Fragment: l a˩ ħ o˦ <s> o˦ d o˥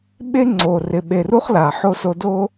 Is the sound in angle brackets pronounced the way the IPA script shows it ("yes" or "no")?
yes